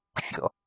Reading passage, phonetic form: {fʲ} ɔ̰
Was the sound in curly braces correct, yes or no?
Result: yes